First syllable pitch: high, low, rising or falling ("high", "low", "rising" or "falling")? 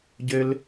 high